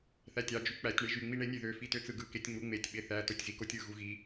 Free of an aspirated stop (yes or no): yes